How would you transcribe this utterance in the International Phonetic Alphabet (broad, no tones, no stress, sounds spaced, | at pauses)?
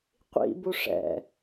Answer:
qʷ ḭ b u ʂ ɛ̰